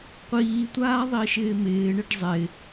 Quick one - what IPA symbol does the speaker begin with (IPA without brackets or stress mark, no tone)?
qʷ